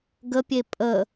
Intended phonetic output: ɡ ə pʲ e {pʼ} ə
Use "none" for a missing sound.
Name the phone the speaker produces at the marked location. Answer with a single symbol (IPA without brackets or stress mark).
pʼ